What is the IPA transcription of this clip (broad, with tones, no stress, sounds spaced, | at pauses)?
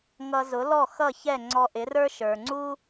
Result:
ŋ ʌ˧ z ʊ˩˥ l ɔ˥˩ x ʌ˥˩ ç ɛ˥˩ ŋ͡ǀ ɔ˧ ʔ ɪ˩˥ r ə˞˥ ʃ ə˞˩ ŋ͡ǀ u˥